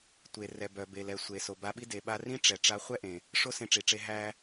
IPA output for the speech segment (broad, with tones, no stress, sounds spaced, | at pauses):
tʷ e˩ r ɛ˩ b œ˩ b e˩ l ɛ˩ sʷ e˩ s o˩ b a˧ ɓ i˥ d e˩ ɓ a˧ r ĩ˥ ʈ͡ʂ ɛ˩ ʈ͡ʂ a˧ χʷ ɛ˥ ʔ ẽ˩ | ʂ o˥ s ẽ˧ ʈ͡ʂ i˩ ʈ͡ʂ e˧ ɦ æ˧